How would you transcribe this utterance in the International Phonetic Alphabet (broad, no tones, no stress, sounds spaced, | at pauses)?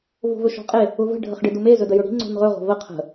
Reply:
v o̤ v ɵ ʃ ɔ̤ qʼ e | ʊ v ə̤ ɖʱ ə χ ɖ ɪ d ʊ m e z ɵ d ə j ɵ ɽ i̤ ŋ͡ǀ o̤ n ʁ ɵ ʁ o̤ v ə qʰ ə̤